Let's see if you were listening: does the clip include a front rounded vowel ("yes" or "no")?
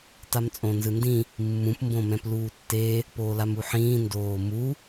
no